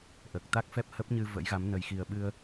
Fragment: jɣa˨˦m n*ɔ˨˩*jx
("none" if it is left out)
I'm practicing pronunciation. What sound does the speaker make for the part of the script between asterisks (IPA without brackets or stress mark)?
ə˨˩